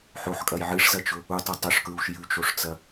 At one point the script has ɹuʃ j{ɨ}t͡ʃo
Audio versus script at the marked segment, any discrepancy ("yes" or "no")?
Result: yes